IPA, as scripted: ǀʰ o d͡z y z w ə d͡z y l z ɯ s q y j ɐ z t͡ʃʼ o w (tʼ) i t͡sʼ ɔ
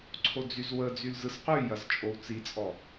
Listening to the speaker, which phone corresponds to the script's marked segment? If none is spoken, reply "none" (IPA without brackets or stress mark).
t͡s